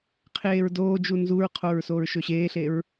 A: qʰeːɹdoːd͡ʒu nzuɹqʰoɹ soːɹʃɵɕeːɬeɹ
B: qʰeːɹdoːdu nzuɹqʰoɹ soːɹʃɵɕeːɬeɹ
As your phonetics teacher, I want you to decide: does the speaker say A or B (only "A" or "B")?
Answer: A